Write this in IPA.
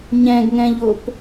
ɲ ɛ̃ ɡ ŋ ɛ̃ ʎ o p

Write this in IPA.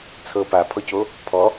t͡sʰ ɤ p a pʰ ɔ c o | pʰ ɔ

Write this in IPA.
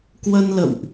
k w ə˧ n l ə̰˧˨ w ʔ

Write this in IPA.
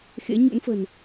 x ḛ˧˥ ɲ ṵ˧˥ n f ə̤˨˩ n

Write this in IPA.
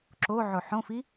ǁ o ʕ o ħ õ f i

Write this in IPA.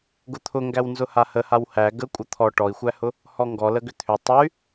ɡ ʊ t̪ʰ ʊ ŋ ɡ æ w n z ʊ h a h ə h a w h æ ɡ ə kʷʼ ə t̪ʰ ɔ ʈ ɔ i̯ xʷ æ h ʊ | h ɔ ŋ ɡ ɔ l ə ɡ ʏ t̪ʰ ʏ tˤ ə y̯

